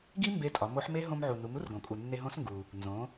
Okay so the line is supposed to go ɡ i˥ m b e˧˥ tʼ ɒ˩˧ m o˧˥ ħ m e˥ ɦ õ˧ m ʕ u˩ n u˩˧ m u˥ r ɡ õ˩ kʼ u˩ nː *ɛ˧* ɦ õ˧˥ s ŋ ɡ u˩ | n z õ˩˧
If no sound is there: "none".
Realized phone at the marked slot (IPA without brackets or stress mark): e˧